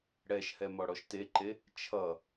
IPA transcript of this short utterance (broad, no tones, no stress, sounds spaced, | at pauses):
ɽ ɛ ʃ h ɛ m ɔ ɽ ɔ ʃ t e ǃ e | t͡ʃʰ ʌ